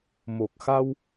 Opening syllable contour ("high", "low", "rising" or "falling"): low